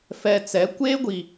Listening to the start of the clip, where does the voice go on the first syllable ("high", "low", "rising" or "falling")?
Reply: high